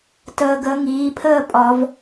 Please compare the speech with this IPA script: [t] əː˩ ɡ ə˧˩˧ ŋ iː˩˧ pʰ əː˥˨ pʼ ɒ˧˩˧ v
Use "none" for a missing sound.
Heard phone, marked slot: t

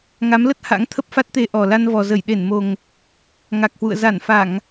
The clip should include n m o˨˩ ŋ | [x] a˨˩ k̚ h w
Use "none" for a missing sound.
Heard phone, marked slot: ŋ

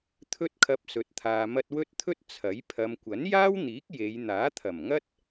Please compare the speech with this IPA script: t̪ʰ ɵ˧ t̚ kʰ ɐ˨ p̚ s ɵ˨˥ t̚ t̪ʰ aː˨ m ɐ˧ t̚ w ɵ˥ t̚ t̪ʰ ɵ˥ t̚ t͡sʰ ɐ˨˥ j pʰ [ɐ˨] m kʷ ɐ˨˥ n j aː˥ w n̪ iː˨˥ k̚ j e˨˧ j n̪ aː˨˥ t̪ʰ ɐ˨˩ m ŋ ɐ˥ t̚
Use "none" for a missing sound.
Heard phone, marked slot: ɐ˨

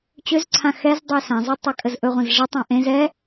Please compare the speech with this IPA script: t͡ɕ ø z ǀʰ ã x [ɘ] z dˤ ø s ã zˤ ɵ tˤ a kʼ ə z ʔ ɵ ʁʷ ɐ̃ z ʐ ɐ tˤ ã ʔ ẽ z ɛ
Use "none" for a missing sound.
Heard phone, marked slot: ɛ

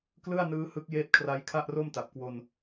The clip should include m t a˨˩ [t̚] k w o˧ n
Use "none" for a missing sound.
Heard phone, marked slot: p̚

